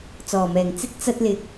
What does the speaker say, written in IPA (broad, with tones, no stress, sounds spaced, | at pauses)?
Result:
t͡s ɔː˨˩ m ɛː˨˩ ŋ t͡s ɪ˥ k̚ t͡s ɐ˧ t̚ l ɪ˨ k̚